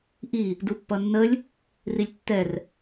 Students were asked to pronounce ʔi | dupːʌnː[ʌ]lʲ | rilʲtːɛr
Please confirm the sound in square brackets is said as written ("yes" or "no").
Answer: no